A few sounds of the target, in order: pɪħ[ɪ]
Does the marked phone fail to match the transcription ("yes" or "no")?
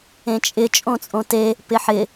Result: no